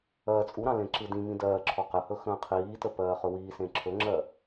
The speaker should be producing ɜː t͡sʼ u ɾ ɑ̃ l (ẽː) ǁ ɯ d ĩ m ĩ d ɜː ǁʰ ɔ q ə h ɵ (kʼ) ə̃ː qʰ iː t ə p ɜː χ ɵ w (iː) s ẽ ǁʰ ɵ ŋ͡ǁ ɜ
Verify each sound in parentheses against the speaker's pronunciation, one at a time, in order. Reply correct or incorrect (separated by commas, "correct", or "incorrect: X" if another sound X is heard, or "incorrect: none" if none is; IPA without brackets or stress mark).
incorrect: ẽ, incorrect: x, correct